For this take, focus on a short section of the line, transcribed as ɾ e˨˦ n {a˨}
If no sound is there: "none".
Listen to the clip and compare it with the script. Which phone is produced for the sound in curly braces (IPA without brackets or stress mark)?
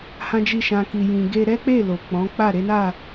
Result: a˦˨